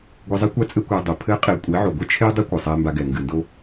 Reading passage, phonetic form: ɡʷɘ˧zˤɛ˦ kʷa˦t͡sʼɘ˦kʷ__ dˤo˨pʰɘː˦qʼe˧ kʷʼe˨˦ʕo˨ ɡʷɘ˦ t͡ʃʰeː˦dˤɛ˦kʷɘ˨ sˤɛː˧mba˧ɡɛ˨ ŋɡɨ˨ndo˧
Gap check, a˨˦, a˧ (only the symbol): a˧